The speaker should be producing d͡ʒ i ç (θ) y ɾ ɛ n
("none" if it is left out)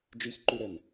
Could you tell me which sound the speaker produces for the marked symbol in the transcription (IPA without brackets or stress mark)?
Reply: ǃ